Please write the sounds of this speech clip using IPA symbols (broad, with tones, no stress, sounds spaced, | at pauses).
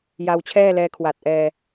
j a˧ w t͡ɕʰ ɛː˥˩ l ɛː˧ kʰ w a˨˩ t̚ ʔ ɛː˧